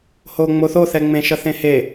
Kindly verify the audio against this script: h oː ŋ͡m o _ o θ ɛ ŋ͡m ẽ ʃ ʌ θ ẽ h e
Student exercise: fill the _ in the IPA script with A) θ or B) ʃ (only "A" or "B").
A